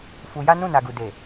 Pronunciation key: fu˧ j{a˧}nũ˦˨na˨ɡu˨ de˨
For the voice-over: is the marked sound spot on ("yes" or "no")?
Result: no